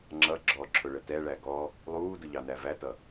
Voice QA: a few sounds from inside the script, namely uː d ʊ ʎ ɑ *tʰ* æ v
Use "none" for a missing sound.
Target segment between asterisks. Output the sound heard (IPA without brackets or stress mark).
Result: n